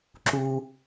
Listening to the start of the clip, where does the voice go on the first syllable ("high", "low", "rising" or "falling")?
high